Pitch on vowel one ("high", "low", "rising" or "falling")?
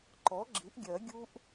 rising